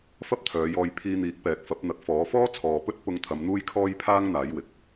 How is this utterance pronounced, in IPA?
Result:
f ɐ˥ p̚ t̪ʰ œː˨˧ j ɔː˧ j pʰ iː˧ n̪ iː˨˥ k̚ p ɛː˨ k̚ f ɐ˨˥ p̚ n̪ ɐ˨˥ k̚ f ɔː˨˥ f ɔː˥ t͡sʰ ɔː˨ p ɵ˥ t̚ p ʊ˧ ŋ t̪ʰ ɐ˨˧ m n̪ uː˥ j kʰ ɔː˥ j pʰ aː˥ ŋ n̪ aː˨˥ j w ɪ˨˥ k̚

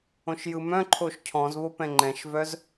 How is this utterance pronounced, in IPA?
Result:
õ ʃ j ɯ m œ̃ ǃʰ o ʃ cʰ ɔ̃ z β o p ɛ̃ ŋ͡ǃ ɛ̃ ʃ v œ z

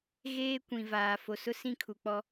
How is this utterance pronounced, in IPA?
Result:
ɣ eː˦ kʷ ĩ˨ v aː˨ f o˨ s ʊ˦ s ĩ˦˨ kʰ u˨ k͡p ɔ˦

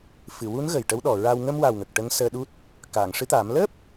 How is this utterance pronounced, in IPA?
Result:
f ɨ˨˩˨ w u˧˥ n ɣ ə˨˩ j ʈ ə˧˥ w ɗ ɔ˨˩ ɹ a˧ w ŋ ə˧ m w a˨˩ w ŋ ə˨˩ k̚ ʈ ə˧˥ ŋ s əː˧ ɗ u˦˥ t̚ | k aː˨˩˨ ŋ ʂ ɨ˧˥ t̪ aː˨˩˦ m l əː˦˥ p̚

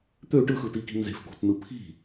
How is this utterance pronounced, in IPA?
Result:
t̪ ø ʈ ɯ x ɯ t i k i̤ n z e̤ f k ṳ t n̪ ɯ pʰ i̤

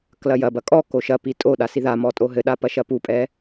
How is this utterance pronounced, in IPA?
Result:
k l ɐ j ɐ b ɐ kʼ ɔ k o ʃ ɐ p i tʼ o ɗ a s i ð a m ɔ tʼ o ɦ ɘ ɗ a p ɐ ʃ ɐ p u pʼ ɛ

